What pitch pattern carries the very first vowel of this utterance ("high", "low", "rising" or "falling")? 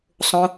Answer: high